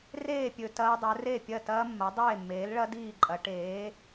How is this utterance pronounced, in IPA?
r eː˥˩ pʲ ɵ˨ t ɐː˦˥ dˤ ɵ˩˥ r e˥˩ pʲ ɐ˥˩ t ɐː˦˥ mː ɐ˩˥ dˤ eː˥˩ mː eː˩˥ l ɭ ɐ˦˥ d iː˥˩ ǃʼ ɐ˩˥ ʈ eː˩˥

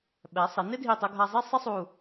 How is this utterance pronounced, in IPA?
ɓ ɛ˩˧ sˤ ɪ˩˧ n ɪ˥ dʱ i˧˩ tˤ ʊ˧ ɡʱ a˧ zˤ i˥˧ sˤ ɪ˥ sˤ u˧˩

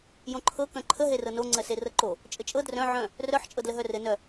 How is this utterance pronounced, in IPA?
j õ ǃʰ ɤ k œ̃ ǃʰ ə ɦ e r ɤ n o ŋ͡ǀ ɜ s e r ɤ ǃ o | t͡ʃʼ ɘ t͡ʃʼ ɤ d r œ̃ ʕ œ̃ | r œ ħ t͡ʃʼ ɤ d l ə ɦ œ r ɘ n œ

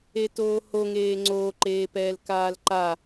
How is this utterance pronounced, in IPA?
e t oː h o ŋ eː ŋ͡ǀ oː ǃ eː p ɛː l k aː l ǃ a

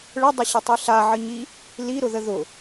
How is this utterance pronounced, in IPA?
ɭ ə dˤ ə ɕ ə tˤ i ɬ a ʕ ə ɲ i | l i ɾ ʊ ð ə ð ʊ

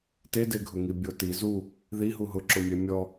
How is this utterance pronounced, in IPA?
t e d e ɡʱ ʊ ŋ i bʲ o t i z u | ð i ɦ u ɦ ʊ ǁ ʊ mʲ ɛ mʲ ɔ

